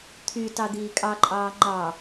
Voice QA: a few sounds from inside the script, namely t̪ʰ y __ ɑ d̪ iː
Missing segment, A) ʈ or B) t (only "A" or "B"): B